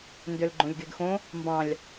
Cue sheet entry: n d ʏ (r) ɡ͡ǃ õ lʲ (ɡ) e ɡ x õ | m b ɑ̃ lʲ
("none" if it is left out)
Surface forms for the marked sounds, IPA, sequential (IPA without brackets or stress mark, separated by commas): l, ɡ